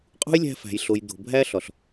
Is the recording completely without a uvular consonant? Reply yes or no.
no